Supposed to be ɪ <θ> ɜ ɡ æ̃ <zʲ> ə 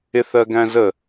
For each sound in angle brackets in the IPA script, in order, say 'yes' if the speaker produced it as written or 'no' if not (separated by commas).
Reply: yes, no